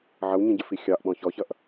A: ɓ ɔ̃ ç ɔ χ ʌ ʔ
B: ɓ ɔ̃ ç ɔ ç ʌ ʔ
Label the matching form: B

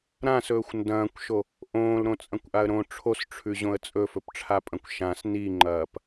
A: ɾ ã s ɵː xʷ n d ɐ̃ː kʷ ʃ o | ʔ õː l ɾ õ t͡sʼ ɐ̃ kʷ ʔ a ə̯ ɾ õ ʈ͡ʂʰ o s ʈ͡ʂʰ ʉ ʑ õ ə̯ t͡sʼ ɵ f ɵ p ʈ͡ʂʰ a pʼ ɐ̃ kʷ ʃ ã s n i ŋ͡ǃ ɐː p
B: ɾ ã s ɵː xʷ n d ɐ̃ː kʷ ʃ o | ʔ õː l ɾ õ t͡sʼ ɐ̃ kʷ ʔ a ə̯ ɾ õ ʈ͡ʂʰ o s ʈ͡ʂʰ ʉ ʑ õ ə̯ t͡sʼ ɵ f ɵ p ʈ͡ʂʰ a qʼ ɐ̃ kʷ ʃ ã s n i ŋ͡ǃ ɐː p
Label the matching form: A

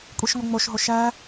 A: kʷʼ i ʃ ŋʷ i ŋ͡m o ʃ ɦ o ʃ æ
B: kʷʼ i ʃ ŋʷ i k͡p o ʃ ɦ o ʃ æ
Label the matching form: A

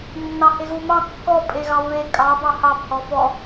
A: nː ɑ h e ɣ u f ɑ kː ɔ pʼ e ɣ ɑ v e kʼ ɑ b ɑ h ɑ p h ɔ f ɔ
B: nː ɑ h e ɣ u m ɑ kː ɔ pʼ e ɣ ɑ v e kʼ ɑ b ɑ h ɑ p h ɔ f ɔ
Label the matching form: B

